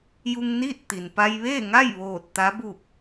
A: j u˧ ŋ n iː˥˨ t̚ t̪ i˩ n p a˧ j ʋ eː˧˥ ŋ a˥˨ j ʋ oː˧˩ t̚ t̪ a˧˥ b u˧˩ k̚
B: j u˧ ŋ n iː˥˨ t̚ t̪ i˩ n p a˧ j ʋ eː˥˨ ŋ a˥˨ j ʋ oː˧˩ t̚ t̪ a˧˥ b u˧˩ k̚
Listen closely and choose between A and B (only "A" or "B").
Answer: B